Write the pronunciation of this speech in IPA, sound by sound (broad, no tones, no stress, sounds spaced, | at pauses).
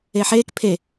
e ħ e k pʰ e